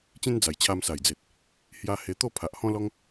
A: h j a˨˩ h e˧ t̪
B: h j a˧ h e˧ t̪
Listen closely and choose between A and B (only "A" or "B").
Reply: B